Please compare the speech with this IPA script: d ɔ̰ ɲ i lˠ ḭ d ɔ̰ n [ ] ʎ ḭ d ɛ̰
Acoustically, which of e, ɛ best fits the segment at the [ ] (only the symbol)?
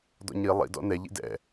ɛ